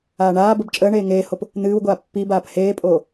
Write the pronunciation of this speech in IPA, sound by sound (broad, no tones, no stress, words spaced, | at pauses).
aːɳaːbəb t͡ʃʼəːɳeː ŋeːhop | n̪ɨːwɡʷaː pːibaːp heːpʼoː